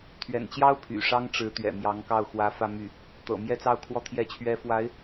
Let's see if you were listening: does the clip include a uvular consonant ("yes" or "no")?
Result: no